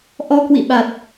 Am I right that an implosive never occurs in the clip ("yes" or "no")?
no